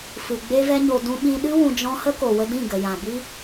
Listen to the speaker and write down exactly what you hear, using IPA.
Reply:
f ɨ˨ ɡ͡b e˦ v ɛ˦ ɲ o˧ d ũ˧ ɓ ĩ˧ ɗ ɨ˦ w ũ˧ d͡ʒ ɔ̃˦ h ə˦ k o˨ w ə˧ d ĩ˦˨ ɡ ə˨ j ã˨ b i˦

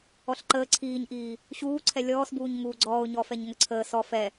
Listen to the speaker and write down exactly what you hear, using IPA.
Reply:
ɔ ɬ ǃ əː ǀʰ iː ɲ ʔ iː | ɕ uː ǀʰ ɛ lʲ ɔː s b uː ɲ ŋ uː ɡ͡ǀ ɔː ʊ̯ ɲ ɔ f ɛ ɲ ŋ ə ǀʰ əː s ɔ f ɛ

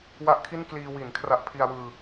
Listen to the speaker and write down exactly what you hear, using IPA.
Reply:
w a˦˥ ʔ kʰ i˥˩ n k l iː˧ w i˩˦ n kʰ r a˦˥ ʔ pʰ i˧ a̯ w ɯː˧

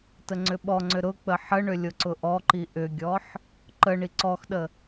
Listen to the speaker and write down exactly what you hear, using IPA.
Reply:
t ə ŋ͡ǀ ʏ ɓ ɔ ŋ͡ǀ ʏ ɾ ʊ k͡p ə ħ ə ɳ ʏ lʲ ʊ ǀ ʊ ʔ ɔ ǃ i ʔ ʏ ɡʲ ɔ ħ | ǃ ə ɳ i ǀ ɔ x ɗ ə

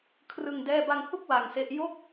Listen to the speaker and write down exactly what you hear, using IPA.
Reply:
kʰ r ɯ˧ ŋ d ɛː˥˩ b a˧ ŋ h u˥˩ k̚ w a˧ ŋ s e˦˥ ʔ j o˥˩ k̚

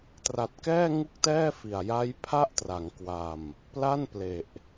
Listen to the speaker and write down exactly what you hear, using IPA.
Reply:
t r a˨˩ t̚ k ɛː˥˩ ŋ u˥˩ k̚ t ɛː˥˩ f i˨˩ a̯ j a˦˥ j pʰ a˥˩ ʔ t r a˩˦ ŋ k w a˧ m | p l a˥˩ n p l e˨˩ ʔ

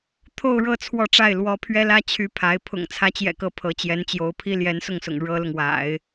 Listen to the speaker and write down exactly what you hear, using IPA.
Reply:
t̪ʰ o˥˧ ʊ̯ ɻ ɤ˥˧ t͡sʰ w ɔ˥˧ ʈ͡ʂ a˥˩ ɪ̯ l w ɔ˧˥ pʰ ɥ ɛ˥ l ä˥ t͡ɕʰ y˧˥ pʰ a˧˥ ɪ̯ pʰ ʊ̰˨˩ ŋ t͡sʰ ä˧˥ t͡ɕ j ɛ̰˨˩ k ɤ˧˥ pʰ ɤ˧˥ t͡ɕ j ɛ˧˥ n t͡ɕ j o˧˥ ʊ̯ pʰ i˥ l j ɛ˧˥ n s ʊ˥˩ ŋ s ʊ̰˨˩ ŋ ɻ ɤ˥ l ʊ˨ ŋ w a̰˨˩˦ ɪ̯

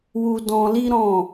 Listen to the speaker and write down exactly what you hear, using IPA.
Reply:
w u˧ d ɔ̃˧ l i˦ ɾ ɔ̃˦˨

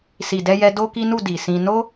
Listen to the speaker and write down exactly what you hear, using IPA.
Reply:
s i˨ d ɛ˧ j ɛ˧ d o˦ k i˦ n u˦˨ d i˨ s ĩ˧ n o˦

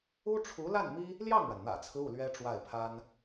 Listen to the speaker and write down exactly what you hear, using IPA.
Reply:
u˥ ʈ͡ʂʰ u˧˥ l a˥˩ n m i˥ | l j ɑ˥˩ ŋ ɻ a˩ n n̪ ä̰˨˩ t͡sʰ ɹ̩˦ u˥˩ l ɥ ɛ˥ ʈ͡ʂ w a˥˩ ɪ̯ pʰ a˥ n

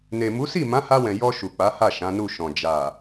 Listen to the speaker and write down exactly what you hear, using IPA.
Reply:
n e˨ m u˨˦ s i˦˨ m ã˨˦ h a˧ w ɛ̃˨ j ɔ˧ ʃ u˨ k͡p a˨˦ h a˦˨ ʃ ã˨˦ n u˦˨ ʃ ɔ̃˨ d͡ʒ a˨

